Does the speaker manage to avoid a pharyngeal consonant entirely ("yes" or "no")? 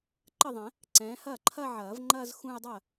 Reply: no